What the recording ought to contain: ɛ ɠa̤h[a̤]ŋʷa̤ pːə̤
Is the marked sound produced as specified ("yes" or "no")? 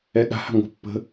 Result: yes